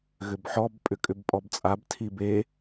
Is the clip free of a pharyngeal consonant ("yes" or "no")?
no